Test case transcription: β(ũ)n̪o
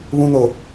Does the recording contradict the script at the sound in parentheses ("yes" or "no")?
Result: no